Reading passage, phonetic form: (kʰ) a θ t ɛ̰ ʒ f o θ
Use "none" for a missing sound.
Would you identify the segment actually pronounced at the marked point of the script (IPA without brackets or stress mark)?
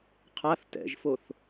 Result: qʰ